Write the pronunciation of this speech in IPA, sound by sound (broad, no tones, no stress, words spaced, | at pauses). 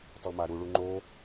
tˤumaɾuɭu ŋ͡ǃo